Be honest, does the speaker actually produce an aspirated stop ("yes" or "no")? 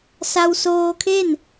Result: yes